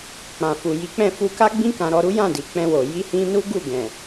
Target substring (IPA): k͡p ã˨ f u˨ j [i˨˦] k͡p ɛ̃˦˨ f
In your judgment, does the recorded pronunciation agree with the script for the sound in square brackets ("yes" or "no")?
yes